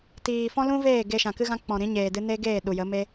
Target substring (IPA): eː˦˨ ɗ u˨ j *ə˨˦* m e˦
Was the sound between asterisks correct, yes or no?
yes